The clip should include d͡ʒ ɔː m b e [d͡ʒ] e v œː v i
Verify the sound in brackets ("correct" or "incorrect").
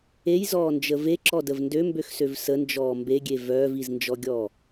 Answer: incorrect